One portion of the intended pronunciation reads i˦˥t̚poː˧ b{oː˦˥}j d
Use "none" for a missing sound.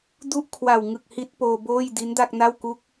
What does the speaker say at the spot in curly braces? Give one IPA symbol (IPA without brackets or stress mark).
oː˥˩